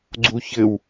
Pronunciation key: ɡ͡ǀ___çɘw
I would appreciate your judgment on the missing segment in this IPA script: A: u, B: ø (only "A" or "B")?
A